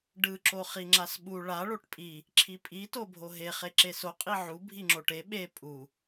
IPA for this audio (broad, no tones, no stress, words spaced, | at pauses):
ɖɯ ǁoχiŋ͡ǁasɓu ɭa ɭoʈpʼi | ǁʰipʼi tobʱoɦe χeǁeso qʼiʕu bʱiŋ͡ǁoʈe ɓe pʼu